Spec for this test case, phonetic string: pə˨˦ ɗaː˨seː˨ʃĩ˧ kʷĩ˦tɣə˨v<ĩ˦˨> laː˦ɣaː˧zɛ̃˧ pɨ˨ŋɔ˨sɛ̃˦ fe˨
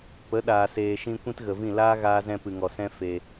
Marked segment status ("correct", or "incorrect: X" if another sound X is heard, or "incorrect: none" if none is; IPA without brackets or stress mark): correct